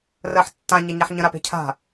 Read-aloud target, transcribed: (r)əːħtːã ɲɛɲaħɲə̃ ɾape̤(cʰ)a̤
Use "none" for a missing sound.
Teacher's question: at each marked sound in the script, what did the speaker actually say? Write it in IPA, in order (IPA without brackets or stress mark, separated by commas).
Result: r, cʰ